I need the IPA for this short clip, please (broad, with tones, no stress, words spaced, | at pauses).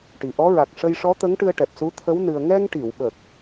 ʈi˨˩ʔɔ˧˥ ɹa˨˩k̚ʂə˧jʂɔ˧˥ t̪ə˧˥ŋʈɨ˧ə̯ʈɛ˨˩p̚ su˧˥t̪ʰə˧˥w nɨ˧ə̯ ŋɛ˧ŋʈi˨˩˨wɓə˨˩k̚